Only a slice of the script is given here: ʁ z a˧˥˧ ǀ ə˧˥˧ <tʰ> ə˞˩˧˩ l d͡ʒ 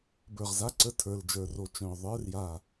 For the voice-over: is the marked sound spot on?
yes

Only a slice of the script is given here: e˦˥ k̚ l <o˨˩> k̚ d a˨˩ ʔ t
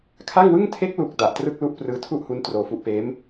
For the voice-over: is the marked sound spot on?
no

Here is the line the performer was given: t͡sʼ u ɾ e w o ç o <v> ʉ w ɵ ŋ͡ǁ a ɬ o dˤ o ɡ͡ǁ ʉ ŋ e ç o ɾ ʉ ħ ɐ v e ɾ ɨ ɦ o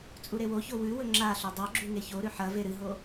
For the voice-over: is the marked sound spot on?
no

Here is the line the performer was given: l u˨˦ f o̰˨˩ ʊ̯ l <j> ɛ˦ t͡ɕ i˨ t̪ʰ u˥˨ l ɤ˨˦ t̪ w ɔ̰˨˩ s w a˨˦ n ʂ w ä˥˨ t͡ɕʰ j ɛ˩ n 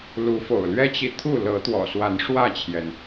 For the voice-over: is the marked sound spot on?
no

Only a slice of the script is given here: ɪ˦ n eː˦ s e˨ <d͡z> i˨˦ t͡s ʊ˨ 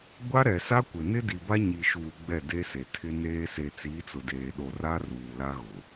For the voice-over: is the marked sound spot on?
no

